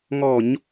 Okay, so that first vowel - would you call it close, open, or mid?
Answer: mid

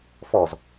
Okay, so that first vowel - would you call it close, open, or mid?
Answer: mid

